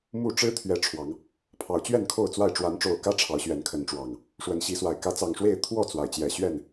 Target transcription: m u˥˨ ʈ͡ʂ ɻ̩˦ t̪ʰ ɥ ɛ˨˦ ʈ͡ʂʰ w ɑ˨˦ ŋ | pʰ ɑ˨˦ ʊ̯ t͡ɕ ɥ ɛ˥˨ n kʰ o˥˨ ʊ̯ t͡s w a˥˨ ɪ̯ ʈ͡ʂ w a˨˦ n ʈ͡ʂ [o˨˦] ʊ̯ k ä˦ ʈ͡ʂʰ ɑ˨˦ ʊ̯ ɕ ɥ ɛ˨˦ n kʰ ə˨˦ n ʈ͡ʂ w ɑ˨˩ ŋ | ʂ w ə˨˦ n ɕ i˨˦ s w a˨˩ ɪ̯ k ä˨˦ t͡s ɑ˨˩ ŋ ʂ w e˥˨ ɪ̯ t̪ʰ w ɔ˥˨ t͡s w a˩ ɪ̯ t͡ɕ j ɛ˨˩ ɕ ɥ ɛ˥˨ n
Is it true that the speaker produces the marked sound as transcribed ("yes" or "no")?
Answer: no